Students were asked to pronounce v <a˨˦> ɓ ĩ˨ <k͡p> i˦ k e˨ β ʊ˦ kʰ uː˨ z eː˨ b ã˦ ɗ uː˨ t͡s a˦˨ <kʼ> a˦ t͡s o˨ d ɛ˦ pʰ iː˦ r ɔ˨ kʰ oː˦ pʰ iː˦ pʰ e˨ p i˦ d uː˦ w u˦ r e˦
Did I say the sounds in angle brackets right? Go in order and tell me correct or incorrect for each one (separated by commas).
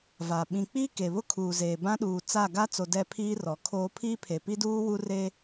incorrect, correct, incorrect